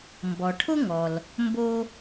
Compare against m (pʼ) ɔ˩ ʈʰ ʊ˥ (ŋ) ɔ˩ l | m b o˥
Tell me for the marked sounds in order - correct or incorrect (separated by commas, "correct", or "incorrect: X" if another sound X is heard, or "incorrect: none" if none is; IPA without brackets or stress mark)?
incorrect: b, correct